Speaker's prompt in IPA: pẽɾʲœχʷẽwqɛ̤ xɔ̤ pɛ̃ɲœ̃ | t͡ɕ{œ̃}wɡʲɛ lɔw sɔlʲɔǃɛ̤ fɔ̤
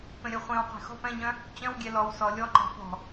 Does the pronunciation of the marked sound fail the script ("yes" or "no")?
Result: no